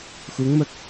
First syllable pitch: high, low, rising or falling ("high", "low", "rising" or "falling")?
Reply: rising